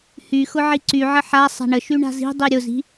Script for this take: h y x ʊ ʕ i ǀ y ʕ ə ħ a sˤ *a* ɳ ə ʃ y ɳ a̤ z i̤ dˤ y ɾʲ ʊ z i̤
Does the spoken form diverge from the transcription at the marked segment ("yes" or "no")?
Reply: yes